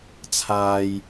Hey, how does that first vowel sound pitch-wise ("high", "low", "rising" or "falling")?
low